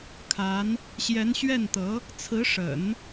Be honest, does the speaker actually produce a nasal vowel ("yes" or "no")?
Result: no